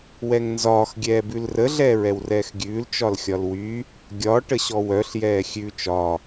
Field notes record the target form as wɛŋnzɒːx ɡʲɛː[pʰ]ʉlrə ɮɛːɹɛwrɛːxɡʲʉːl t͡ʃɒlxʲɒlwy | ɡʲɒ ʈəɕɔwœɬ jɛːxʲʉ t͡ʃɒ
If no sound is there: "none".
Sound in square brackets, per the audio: b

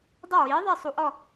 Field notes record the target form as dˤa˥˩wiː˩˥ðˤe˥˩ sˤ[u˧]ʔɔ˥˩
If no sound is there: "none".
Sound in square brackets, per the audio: u˧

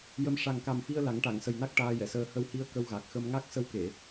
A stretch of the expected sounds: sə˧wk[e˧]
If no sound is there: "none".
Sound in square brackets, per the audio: e˨˩˨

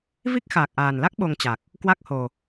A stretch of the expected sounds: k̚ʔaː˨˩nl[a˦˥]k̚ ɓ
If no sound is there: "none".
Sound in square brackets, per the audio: a˦˥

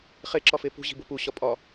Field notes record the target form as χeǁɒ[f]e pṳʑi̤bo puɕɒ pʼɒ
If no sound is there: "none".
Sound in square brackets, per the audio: f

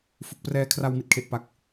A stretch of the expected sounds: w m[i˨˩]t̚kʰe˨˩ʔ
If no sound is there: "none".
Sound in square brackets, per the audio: i˨˩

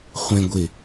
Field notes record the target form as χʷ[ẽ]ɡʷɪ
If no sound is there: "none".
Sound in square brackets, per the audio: ẽ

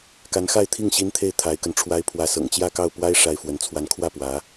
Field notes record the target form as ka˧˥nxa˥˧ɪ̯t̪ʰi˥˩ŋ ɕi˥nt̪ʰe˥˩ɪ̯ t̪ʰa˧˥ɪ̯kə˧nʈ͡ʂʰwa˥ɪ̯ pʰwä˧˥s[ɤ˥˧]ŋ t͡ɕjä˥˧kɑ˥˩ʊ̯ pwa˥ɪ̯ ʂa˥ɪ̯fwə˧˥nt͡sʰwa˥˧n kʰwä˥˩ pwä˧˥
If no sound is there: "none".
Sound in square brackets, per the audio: ɤ̰˨˩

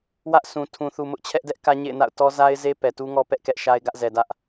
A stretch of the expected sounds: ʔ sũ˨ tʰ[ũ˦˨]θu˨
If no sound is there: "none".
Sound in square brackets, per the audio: ũ˨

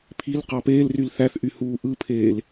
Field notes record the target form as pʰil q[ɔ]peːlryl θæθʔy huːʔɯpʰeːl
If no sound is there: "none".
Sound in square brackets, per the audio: ɑ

